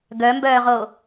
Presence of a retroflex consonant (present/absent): absent